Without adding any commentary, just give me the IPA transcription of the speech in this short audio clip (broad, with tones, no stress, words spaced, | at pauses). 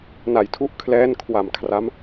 na˩˦jtʰu˦˥ʔkʰlɛː˦˥n kʰwa˨˩m kʰra˦˥m